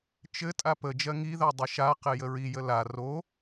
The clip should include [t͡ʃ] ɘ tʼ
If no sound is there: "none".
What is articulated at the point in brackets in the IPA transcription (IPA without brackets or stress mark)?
t͡ʃ